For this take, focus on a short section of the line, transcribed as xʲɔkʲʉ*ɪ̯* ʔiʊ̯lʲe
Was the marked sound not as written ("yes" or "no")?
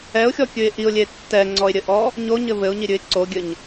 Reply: no